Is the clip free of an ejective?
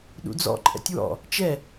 no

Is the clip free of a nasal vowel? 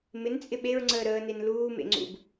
yes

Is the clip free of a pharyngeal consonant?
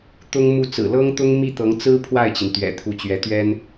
yes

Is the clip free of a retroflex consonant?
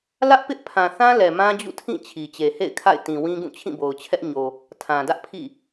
yes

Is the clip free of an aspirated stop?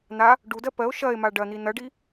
yes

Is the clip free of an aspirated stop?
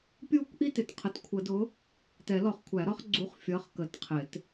no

